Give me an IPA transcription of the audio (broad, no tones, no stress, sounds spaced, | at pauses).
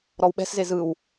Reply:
ɾ ɔ w ɓ ɛ̤ s z e z ɯ w